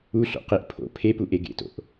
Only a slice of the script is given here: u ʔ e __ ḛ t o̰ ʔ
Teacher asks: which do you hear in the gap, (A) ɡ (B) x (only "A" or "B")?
A